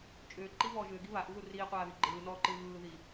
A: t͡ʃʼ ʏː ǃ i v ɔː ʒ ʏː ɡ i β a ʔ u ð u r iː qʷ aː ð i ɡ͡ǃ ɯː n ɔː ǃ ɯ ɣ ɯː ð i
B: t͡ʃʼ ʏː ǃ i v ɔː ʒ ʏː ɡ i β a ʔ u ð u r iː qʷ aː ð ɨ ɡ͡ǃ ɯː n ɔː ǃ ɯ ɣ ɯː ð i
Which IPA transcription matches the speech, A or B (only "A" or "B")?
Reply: A